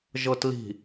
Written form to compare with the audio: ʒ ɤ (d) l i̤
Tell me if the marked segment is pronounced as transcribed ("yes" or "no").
no